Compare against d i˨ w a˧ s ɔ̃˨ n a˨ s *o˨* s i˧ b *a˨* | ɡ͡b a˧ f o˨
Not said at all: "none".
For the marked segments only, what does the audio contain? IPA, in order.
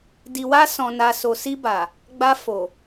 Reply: o˨, a˨

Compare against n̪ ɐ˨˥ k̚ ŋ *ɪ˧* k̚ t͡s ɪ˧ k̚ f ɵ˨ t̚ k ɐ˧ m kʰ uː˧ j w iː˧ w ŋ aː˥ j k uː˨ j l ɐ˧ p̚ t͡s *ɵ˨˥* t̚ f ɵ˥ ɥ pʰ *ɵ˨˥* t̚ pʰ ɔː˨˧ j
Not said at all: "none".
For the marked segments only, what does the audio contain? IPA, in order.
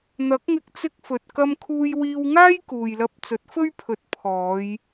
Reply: ɪ˧, ɵ˨˥, ɵ˨˥

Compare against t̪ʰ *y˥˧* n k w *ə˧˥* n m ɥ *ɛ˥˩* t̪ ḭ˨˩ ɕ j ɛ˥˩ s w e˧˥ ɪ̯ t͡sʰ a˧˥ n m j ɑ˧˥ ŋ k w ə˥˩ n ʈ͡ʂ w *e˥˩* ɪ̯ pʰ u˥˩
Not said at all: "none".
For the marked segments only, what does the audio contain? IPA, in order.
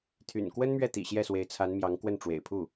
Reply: y̰˨˩, ə˥, ɛ˥˩, ḛ˨˩

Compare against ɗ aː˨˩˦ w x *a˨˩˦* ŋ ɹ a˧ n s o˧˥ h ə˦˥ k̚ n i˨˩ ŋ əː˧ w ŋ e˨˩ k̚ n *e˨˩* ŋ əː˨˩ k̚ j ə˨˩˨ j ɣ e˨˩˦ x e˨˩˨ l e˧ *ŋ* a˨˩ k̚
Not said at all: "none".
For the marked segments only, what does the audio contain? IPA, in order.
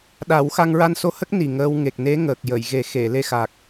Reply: a˧, e˧˥, x

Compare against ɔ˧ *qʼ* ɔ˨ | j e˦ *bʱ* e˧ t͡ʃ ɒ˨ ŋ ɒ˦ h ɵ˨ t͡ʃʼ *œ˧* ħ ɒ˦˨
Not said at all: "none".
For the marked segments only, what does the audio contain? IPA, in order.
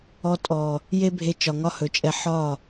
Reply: tʼ, bʱ, ɛ˧

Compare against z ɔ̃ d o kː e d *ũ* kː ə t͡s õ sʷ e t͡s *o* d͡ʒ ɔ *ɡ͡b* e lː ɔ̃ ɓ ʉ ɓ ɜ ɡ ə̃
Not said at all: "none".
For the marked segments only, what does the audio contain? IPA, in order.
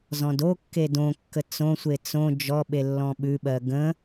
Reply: õ, õ, ɓ

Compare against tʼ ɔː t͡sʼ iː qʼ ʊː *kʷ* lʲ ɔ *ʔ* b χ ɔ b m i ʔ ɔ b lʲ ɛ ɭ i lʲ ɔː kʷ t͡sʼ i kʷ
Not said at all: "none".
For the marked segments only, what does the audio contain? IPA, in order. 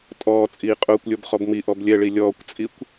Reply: kʷ, none

